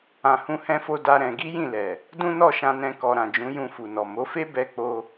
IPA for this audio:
ã˨hũ˨˦hɛ̃˧fo˧ da˦ɾɛ̃˧ ɡi˦jĩ˦˨lɛ˨ | dũ˦nɔ˦˨ʃã˧nɛ̃˧ kɔ˨ɾã˨d͡ʒũ˨˦ jũ˧fu˨nɔ˨ mo˨˦fe˦ bɛ˦k͡po˦

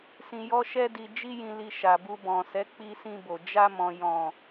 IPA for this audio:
sĩ˨jɔ˧ʃɛ˧di˨ d͡ʒi˧jĩ˨li˨ ʃa˨bu˧bɔ̃˨sɛ˨˦ k͡pi˧sĩ˧bo˨ d͡ʒa˧mɔ̃˨ jɔ̃˨

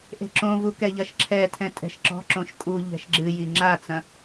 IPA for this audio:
ʔe̤ǁõvu kɛʎɐʃǁʰɛtʰɛ̃ tʼɛ̤ʃǁɔ̤ǁõʃ kʼu ʎɛ̤ʃɡ͡ǁɨji ŋ͡ǁat͡sɐ̃

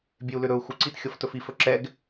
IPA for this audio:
bʲeu̯lʏɾɵu̯ xuǀit xʲɤftɵfif ɵǁɛɡ

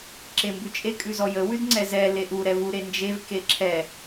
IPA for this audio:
ǁembʉt͡ʃʼe kʼʉzɔjə wʉdŋ͡ǀɛzɛ leʔu ɾɛvu ɾend͡ʒev keǁʰɛ

